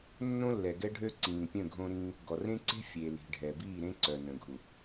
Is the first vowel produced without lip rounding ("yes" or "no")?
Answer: no